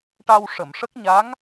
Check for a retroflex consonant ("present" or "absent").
present